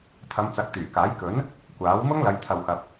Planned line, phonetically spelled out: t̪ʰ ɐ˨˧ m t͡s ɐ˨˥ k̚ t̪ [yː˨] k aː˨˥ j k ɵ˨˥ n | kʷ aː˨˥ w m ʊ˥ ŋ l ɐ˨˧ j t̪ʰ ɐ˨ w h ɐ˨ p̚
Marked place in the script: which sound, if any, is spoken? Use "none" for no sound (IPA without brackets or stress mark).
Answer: yː˨˩